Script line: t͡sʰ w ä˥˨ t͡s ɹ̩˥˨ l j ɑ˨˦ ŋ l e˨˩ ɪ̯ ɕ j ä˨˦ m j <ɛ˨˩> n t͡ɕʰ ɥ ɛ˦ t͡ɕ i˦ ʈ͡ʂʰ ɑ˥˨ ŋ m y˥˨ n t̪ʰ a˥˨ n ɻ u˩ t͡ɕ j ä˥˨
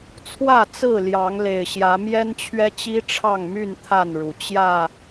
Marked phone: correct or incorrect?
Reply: incorrect